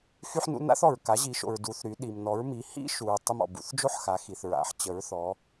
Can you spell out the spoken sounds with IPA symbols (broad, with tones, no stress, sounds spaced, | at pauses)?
x y˦ ħ n ṵ˦ n a̰˦ θ ɔ˩ ɹ k a˩˧ ʑ i˩˧ ʃ o̰˩ ɹ d u˩˧ θ ɾ y˩˧ ɗ i˩ m n ɔ˩˧ ɹ m i˩˧ h ḭ˦ ʃ u˩ ɹ tˤ ə˦ m ɔ̰˩ b ṵ˩˧ θ d͡ʒ o˦ ħ x a˩˧ x i˩ θ ɹ a̰˩˧ ħ t͡ɕ ə˩˧ ɹ θ ɔ˩˧